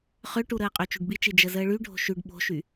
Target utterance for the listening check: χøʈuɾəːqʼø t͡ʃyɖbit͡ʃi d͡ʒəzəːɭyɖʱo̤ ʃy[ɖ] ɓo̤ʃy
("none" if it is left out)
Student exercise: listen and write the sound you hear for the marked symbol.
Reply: ɖ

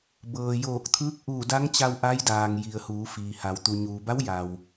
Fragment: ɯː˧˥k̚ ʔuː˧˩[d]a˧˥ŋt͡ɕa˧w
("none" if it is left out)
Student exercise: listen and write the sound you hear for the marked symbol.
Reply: d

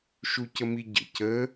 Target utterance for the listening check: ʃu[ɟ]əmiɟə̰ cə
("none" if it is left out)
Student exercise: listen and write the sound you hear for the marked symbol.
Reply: c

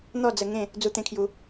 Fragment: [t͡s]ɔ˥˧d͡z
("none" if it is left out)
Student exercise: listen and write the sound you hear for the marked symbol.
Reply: n̪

